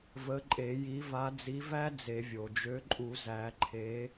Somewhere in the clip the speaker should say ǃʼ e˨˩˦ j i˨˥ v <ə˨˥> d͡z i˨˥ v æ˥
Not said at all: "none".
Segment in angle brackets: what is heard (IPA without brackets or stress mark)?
a˨˥